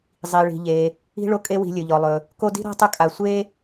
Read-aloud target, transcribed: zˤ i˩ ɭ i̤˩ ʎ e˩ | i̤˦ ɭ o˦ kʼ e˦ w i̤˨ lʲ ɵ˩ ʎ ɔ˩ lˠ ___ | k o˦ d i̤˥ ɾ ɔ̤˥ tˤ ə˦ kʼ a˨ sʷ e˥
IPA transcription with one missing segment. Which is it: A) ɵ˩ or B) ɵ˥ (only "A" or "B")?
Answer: A